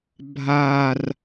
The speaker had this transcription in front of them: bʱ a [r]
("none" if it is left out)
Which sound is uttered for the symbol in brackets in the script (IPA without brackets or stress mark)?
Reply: r